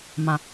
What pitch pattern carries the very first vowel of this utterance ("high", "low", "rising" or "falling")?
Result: low